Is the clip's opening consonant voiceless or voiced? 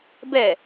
voiced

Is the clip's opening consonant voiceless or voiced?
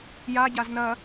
voiced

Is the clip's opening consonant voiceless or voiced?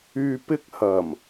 voiceless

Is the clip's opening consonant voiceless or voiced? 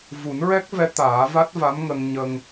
voiced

